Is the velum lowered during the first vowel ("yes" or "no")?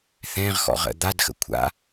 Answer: yes